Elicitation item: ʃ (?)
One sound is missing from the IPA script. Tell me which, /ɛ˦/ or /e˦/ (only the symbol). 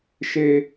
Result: e˦